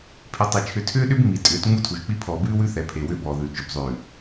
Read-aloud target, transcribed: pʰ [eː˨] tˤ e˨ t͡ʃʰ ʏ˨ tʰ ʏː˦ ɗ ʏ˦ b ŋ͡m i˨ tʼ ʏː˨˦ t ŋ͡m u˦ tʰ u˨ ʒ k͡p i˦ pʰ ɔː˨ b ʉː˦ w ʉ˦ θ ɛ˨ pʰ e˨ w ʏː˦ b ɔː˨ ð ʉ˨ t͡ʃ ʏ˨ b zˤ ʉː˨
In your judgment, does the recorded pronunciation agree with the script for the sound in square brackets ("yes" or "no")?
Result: no